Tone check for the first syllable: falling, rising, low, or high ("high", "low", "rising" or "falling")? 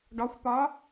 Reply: rising